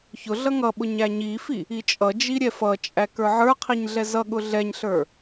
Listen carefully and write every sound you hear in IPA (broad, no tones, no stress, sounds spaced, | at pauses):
ç ʊ ɮ ʌ ŋ ʌ ɓ ʊ ɲ æ ɲ i f i | i t͡ʃʼ ʌ d͡ʒ i ɾʲ ɛ f ʌ t͡ʃʼ æ k ə˞ ʕ ə˞ qʰ i ɲ ɮ ɛ z ʌ ɠ ʊ ɮ ɛ ɲ ɬ ə˞